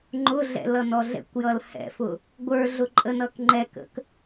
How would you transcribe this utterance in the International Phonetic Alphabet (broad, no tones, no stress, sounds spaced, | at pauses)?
ŋ͡ǃ ʊ ɮ ɛ̰ l ʌ n ɔ ɮ ɛ̰ kʷ j ʌ l h ɛ̰ f ʊ | ɡʷ ə˞ ɮ ʊ ǃʼ ə n ʌ k ŋ͡ǃ ɛ k ə̰ k